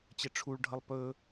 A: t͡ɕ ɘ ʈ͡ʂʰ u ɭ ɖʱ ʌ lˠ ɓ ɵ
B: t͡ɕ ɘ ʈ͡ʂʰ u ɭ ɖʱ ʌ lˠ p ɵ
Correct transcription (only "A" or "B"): B